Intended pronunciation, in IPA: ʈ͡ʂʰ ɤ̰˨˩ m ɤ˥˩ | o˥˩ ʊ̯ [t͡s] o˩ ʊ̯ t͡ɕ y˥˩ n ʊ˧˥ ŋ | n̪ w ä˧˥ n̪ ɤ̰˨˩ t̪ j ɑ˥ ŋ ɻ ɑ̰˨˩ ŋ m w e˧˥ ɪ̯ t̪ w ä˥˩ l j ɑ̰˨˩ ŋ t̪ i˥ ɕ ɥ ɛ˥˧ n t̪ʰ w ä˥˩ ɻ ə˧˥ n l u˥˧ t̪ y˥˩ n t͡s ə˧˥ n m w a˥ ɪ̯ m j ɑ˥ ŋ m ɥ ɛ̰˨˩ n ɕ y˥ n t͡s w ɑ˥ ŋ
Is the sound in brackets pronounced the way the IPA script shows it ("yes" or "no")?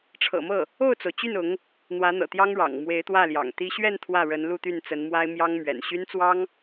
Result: yes